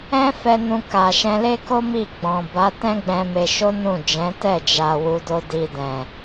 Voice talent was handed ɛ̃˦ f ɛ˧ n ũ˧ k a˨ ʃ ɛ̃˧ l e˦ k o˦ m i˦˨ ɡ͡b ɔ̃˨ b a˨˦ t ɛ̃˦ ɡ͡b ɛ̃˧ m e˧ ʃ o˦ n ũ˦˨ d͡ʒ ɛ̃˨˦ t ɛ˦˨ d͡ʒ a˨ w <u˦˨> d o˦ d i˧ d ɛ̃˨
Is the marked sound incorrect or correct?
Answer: incorrect